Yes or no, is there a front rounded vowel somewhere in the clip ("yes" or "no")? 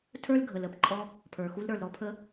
no